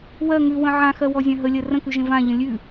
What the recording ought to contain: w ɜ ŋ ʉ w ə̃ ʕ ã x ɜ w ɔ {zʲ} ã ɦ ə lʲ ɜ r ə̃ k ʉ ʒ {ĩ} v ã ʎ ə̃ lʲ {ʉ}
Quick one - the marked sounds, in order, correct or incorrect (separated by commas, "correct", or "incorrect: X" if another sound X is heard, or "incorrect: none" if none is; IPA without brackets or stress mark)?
correct, incorrect: ẽ, correct